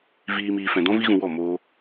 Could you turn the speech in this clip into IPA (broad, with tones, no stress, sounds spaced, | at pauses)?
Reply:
v iː˧ m iː˧ f ɛ̃˧ d ɔ̃˦ v i˦ ɣ ũ˧ w ɔ˦˨ m oː˧